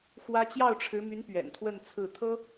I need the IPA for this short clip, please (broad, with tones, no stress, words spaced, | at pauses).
xwä˥ t͡ɕjɑ˥˩ʊ̯ʈ͡ʂʰɻ̩˧˥my˧˥n pɥɛ̰˨˩nt̪ʰwə˥˧nt͡sʰɹ̩˥˩ t̪ʰɤ˥